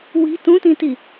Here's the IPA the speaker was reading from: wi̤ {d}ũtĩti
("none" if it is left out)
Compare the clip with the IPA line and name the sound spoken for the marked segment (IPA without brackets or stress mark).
t